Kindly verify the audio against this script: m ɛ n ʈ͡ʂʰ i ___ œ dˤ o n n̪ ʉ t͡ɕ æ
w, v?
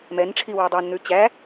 w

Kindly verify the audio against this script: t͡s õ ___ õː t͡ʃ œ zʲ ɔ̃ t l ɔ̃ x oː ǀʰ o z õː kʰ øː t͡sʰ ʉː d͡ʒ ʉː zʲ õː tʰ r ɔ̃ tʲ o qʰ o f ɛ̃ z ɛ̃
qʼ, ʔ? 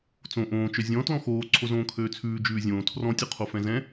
ʔ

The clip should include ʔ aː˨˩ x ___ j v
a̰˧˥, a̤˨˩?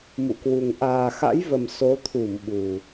a̰˧˥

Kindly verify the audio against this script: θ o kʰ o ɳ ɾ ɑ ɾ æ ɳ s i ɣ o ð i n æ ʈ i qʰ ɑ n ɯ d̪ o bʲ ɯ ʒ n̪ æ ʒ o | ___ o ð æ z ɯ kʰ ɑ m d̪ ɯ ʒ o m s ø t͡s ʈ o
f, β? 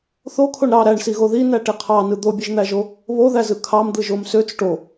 β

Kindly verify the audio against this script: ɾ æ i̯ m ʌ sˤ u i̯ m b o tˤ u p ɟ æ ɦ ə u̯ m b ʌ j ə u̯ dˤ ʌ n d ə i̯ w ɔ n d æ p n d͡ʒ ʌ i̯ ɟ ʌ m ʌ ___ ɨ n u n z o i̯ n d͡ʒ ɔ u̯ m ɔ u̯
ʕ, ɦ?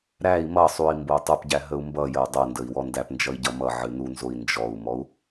ʕ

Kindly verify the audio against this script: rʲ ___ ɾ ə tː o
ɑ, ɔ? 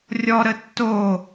ɔ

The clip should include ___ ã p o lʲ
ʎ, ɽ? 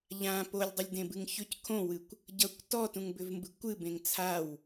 ʎ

